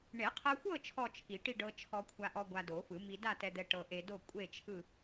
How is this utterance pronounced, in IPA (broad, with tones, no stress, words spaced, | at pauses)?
ɳe˨˩˦qʰɤ˧xʷɤ˥˧ t͡ʃʰɔ˥˧t͡ʃʰi˨˩˦ʈi˥˧ ɖɤ˧t͡ʃʰɔ˧kʷʰa˧ʔɔ˧ ɡʷa˧do˨˩˦fɯ˨˩˦ mi˧da˥˧tɛ˧d̪ɛ˧ ʈɤ˧ʔe˧do˥˧ kʷʼe˥˧t͡ʃʰɯ˥˧